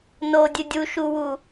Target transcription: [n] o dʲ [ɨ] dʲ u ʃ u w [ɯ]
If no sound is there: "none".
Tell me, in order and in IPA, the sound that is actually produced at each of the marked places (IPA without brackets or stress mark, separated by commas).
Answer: n, ɨ, u